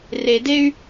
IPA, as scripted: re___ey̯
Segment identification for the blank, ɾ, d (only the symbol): d